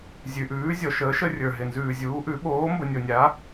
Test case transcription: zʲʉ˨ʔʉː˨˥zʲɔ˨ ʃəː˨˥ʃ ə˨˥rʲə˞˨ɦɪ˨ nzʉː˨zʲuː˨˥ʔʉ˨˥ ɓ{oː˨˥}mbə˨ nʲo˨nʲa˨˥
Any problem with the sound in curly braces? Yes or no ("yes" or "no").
no